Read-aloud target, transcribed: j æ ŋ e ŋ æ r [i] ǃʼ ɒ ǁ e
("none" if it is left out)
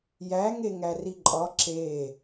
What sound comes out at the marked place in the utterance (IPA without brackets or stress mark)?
i